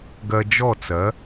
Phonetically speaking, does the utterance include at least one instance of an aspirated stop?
no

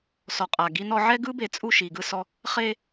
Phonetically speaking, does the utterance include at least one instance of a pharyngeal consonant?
yes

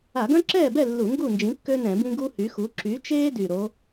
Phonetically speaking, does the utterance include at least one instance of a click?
yes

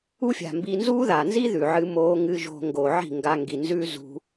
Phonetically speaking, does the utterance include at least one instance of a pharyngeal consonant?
yes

